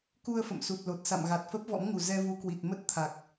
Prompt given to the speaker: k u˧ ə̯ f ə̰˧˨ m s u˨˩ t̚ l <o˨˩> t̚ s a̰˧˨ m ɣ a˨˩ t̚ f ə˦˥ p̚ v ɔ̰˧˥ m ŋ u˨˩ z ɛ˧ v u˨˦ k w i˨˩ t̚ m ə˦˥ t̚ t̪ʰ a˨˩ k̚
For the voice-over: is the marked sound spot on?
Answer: yes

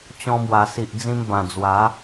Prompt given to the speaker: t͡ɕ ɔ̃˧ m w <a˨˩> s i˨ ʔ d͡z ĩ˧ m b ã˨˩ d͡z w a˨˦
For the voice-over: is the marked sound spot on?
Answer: yes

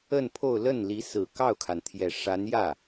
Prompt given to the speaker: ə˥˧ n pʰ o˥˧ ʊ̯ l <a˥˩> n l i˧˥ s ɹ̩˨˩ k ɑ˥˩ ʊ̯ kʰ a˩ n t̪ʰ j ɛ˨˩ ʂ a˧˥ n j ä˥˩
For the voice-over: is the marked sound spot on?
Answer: no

